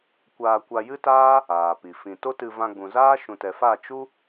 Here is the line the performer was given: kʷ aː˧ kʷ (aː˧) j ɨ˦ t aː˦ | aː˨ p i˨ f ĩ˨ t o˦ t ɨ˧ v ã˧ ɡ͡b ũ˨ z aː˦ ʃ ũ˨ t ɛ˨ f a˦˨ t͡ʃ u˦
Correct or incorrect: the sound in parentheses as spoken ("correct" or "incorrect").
incorrect